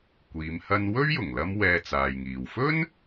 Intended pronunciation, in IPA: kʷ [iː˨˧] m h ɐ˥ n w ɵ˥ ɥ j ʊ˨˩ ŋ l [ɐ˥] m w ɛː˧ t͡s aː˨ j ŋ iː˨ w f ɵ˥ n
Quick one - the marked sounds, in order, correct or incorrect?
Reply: correct, correct

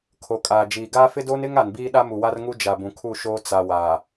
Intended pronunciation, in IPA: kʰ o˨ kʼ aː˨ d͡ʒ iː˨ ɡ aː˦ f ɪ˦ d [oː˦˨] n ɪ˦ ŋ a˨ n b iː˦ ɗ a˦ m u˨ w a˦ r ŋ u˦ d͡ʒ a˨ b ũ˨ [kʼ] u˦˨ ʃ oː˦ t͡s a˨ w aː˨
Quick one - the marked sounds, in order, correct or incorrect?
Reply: incorrect, incorrect

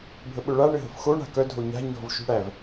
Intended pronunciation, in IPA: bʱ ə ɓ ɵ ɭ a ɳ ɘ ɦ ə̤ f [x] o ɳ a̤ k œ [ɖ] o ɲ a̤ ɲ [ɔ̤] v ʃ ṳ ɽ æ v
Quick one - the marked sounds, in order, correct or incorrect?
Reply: correct, incorrect, correct

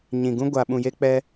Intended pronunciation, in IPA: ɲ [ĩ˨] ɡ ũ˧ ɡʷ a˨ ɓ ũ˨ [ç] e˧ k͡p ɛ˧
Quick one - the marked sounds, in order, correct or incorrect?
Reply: correct, incorrect

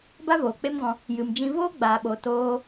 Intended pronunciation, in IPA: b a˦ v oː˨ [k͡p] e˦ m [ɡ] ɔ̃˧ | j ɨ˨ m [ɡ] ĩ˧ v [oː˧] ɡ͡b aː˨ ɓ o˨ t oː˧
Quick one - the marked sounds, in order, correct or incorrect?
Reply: correct, correct, incorrect, incorrect

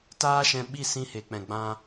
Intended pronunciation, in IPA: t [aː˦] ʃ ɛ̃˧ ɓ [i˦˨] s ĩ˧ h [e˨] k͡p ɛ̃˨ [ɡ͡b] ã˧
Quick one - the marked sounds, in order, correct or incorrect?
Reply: correct, correct, correct, correct

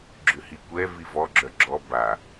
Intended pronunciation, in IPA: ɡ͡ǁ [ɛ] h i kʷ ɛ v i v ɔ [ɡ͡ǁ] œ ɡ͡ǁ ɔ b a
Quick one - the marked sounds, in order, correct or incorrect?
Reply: incorrect, correct

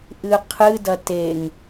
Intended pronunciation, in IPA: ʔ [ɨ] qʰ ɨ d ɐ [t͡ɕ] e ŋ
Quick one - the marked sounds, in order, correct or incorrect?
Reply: correct, incorrect

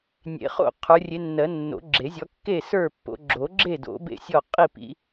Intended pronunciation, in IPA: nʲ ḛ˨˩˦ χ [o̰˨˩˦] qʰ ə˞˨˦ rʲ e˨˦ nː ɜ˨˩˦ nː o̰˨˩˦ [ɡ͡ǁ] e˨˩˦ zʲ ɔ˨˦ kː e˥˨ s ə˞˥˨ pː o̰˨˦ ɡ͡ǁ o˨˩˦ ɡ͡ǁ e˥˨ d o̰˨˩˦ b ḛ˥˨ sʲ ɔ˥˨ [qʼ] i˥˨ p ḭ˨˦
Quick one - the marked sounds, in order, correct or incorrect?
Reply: incorrect, correct, correct

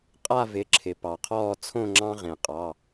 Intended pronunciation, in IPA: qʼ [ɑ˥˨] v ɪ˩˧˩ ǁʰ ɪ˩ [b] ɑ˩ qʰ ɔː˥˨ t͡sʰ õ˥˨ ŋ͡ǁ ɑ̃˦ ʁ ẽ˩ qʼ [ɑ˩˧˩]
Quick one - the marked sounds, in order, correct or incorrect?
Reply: incorrect, incorrect, correct

